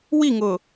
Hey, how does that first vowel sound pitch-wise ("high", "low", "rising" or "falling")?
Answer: falling